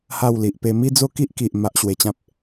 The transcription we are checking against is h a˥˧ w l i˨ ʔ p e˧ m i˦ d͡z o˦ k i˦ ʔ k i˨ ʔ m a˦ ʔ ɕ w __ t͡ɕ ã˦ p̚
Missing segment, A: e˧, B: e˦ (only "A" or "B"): A